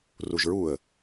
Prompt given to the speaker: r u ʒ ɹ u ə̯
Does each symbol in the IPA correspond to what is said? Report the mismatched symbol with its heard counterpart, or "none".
none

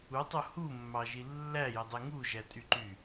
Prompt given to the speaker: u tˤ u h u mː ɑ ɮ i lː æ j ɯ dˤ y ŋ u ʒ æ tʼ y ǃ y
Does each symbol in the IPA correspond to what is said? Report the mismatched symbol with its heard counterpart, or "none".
ɮ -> ʒ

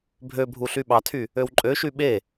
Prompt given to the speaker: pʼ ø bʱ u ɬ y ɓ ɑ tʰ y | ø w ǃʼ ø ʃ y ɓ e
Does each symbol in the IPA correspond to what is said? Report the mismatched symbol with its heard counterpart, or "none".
pʼ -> bʱ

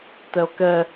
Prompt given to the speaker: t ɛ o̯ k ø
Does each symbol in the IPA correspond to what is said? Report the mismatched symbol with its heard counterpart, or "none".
ø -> ɛ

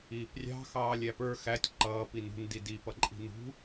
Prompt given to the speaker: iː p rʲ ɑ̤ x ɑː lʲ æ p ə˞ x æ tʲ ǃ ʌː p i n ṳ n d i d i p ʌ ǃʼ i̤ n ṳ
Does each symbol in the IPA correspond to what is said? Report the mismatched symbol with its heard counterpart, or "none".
none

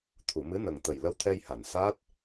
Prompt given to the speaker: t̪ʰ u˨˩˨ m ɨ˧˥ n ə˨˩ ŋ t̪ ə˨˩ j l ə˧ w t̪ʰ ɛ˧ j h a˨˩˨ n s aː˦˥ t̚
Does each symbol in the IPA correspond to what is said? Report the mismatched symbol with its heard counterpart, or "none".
none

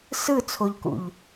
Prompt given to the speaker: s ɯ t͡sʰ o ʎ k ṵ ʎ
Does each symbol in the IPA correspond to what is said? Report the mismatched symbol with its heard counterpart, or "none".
none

